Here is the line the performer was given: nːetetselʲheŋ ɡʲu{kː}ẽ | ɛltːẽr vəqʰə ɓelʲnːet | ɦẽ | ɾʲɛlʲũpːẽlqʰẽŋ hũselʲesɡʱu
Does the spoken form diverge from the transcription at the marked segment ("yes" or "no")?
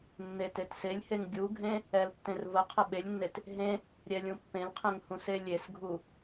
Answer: yes